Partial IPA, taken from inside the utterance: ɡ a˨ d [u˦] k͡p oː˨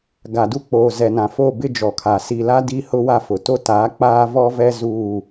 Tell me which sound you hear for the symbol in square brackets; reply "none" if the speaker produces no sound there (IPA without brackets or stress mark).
u˦